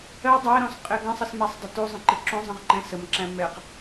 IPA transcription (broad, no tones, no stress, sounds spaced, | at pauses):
ɜ dˤ æ ɾ ɔ̃ s qʼ ɪ ɡ ə̃ sˤ ə s m æ sˤ dˤ ə t u zˤ ə̃ ǃ ɪ ǁ ũ zˤ ə̃ ʁ ǃ ɛ̃ s ə m ǁ æ̃ m ɛ q